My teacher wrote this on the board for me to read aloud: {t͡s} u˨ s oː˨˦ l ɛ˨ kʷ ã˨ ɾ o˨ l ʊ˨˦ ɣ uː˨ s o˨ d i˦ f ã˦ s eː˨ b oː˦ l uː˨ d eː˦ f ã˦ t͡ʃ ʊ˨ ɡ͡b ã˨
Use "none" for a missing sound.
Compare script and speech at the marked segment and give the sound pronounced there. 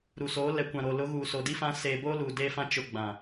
ɾ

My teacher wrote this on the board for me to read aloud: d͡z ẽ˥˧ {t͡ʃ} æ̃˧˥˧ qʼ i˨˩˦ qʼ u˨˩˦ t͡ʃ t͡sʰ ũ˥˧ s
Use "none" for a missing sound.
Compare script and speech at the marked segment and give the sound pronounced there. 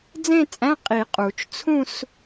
t͡sʼ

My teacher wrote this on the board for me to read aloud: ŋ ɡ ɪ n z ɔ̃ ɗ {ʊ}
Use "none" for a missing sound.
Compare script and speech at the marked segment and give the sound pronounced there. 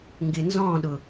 ʊ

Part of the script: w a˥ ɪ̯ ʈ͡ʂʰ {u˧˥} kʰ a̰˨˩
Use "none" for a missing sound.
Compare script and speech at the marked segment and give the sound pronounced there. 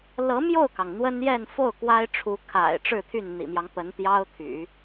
u˧˥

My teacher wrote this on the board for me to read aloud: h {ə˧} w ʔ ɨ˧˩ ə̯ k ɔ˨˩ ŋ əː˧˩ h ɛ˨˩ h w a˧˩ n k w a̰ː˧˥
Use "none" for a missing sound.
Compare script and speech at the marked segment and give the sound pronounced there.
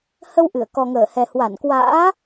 ə˧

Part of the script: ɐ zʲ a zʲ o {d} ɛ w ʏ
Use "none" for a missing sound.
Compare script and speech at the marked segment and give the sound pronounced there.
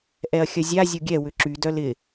ɡʲ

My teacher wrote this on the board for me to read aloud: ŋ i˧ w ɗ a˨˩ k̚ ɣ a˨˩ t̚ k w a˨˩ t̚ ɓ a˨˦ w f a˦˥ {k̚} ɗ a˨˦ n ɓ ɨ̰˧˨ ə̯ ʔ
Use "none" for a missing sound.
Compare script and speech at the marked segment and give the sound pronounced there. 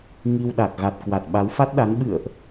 t̚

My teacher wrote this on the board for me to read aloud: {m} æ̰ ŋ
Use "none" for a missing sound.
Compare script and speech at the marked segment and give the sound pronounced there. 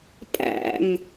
pʼ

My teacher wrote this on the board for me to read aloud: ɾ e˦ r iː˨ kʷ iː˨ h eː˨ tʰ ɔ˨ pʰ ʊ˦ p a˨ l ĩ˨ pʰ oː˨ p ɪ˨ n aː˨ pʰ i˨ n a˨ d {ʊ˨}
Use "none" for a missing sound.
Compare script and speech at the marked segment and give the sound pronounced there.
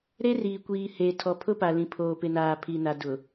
ʊ˨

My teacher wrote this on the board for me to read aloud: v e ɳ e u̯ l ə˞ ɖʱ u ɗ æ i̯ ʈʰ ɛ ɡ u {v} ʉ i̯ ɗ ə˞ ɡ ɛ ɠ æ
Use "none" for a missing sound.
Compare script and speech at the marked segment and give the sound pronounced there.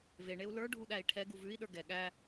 v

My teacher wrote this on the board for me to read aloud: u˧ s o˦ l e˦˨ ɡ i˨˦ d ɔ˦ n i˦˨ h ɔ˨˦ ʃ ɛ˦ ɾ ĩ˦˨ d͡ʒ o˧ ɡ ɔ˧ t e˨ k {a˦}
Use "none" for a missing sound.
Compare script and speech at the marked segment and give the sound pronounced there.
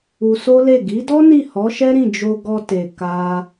a˧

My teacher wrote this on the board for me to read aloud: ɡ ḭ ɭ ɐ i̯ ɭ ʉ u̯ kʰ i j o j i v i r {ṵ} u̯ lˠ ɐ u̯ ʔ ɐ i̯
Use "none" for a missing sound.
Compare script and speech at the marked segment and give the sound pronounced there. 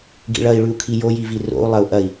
o̰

